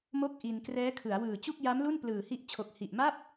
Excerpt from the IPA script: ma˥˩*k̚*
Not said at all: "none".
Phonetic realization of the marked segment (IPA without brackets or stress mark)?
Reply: p̚